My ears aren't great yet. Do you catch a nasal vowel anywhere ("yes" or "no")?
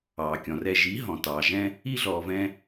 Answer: yes